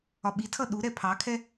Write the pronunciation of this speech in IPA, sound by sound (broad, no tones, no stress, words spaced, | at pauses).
ɒɓitʰʌ ɗuɾɛ pʰɑkʰɛ